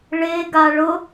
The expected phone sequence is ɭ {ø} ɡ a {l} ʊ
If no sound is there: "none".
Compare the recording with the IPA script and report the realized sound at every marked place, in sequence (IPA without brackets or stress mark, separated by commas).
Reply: e, ɭ